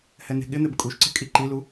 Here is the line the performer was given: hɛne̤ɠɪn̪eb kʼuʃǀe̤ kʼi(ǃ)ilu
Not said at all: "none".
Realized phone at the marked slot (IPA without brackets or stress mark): ǃ